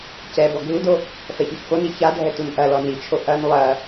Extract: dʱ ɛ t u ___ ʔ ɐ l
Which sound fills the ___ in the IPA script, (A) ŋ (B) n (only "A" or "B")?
B